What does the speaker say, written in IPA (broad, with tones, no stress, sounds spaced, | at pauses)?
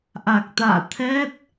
ʔ a˨˩ k̚ t̪ a̰ː˧˨ t̪ʰ ɛ˦˥ t̚